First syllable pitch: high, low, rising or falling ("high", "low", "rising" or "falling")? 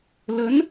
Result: rising